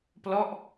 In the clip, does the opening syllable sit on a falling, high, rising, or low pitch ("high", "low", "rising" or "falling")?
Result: falling